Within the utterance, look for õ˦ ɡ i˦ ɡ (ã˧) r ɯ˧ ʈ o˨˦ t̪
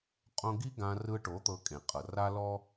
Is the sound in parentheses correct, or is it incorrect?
correct